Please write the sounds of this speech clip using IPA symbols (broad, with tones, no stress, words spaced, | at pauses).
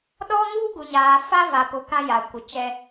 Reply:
ɗɔ˦ŋuː˦ɡu˨ɲaː˨ fa˦va˨pʊ˨ kã˦jaː˨ kʷɪ˨t͡ʃɛ˦